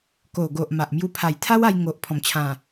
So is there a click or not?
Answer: no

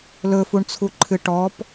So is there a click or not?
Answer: yes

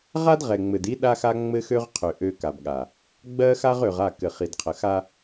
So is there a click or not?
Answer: no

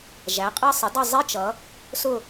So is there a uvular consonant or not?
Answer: yes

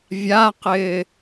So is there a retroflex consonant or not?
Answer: no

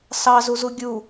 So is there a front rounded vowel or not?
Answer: no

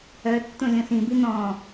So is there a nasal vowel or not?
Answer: yes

